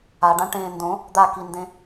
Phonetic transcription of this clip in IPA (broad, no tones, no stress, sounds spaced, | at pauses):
a ɖ ã ʈ ẽː n d õ | d̪ a k i n d ẽ